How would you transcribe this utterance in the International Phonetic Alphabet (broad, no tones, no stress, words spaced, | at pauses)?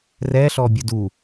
rɛɬɔbʲʊd u